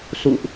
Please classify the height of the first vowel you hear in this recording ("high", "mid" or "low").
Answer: high